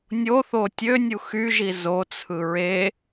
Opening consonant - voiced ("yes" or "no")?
yes